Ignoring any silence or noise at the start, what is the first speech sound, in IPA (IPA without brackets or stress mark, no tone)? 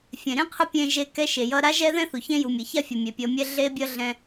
fʲ